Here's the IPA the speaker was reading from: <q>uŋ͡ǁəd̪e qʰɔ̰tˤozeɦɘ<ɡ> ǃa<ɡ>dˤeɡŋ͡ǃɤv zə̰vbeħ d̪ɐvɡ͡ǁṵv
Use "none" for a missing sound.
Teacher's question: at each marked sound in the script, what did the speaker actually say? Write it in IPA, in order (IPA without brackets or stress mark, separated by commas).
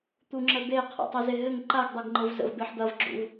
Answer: t̪, ŋ, ɡ